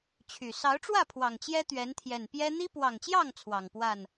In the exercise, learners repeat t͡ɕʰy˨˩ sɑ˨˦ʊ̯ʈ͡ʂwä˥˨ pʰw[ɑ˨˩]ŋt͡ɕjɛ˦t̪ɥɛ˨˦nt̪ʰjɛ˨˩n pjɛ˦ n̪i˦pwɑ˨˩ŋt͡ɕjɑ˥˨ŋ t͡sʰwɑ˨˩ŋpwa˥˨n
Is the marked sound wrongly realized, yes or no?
no